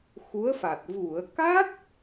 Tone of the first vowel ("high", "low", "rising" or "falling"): rising